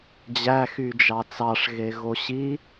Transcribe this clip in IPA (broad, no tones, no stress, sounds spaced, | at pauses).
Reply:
d͡ʑ æ x y d͡ʒ ɑ t͡s ɑ ʂ ɣ e ɣ o ɕ i